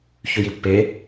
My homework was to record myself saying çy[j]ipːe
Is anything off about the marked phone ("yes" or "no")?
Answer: no